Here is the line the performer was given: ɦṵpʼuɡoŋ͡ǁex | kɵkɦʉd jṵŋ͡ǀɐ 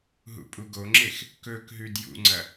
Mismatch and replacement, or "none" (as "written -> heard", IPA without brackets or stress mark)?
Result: none